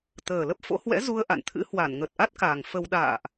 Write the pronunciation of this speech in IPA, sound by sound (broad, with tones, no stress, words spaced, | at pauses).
t̪əː˨˩lə˦˥p̚fo̰˧˥ hwɛ̰˧˥zu˧ə̯ ʔa̰˧˨nt̪ʰɨ̰˧˥hwa˧˩n ŋə˨˩t̚ʔa˦˥t̚kaː˨˩ŋ fə˧w ɗa̰ː˧˨ʔ